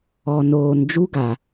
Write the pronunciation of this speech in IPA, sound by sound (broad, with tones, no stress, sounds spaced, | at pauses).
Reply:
ɔ˨ n oː˨ n d͡ʒ u˦ ɡ a˨